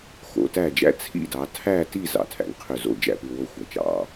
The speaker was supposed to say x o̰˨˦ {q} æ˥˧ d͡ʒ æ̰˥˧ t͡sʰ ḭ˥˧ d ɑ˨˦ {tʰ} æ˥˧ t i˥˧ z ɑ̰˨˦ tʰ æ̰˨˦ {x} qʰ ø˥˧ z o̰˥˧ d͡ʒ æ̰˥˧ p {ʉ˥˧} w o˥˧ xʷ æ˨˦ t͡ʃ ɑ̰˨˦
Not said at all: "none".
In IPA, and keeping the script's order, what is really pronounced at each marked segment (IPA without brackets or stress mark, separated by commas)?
t, tʰ, ŋ, ʉ˥˧